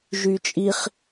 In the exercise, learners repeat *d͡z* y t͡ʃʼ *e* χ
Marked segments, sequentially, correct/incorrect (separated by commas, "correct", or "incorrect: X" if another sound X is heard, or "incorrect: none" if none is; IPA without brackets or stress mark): incorrect: ʒ, incorrect: i